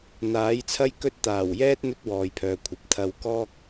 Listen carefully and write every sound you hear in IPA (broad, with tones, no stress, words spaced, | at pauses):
n̪aː˨˥jt͡sʰɐ˥jkɵ˥t̚ t̪aː˨˩wjɛː˥t̚ n̪ɵ˥t̚wɔː˨jpʰœː˨kʷʰɐ˨p̚ t̪ʰɐ˧w kɔː˥k̚